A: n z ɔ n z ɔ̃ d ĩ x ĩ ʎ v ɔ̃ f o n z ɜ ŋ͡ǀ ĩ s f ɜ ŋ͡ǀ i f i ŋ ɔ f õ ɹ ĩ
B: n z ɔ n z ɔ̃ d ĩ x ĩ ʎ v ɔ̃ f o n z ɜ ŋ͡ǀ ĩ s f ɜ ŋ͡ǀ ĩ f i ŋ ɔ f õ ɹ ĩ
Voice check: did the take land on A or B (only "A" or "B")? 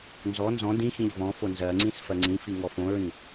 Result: B